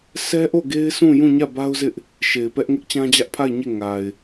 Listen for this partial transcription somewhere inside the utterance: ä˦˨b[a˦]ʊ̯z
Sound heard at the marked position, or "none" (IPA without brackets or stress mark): a˦